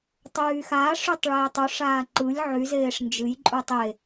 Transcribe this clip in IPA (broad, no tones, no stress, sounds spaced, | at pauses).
tˤ yː x a ʂ y tˤ ɭ eː tˤ u ʂ aː ǃ ɯ lʲ ʕ y z eː ʂ n d͡ʒ ɨ j ǃʼ u tˤ e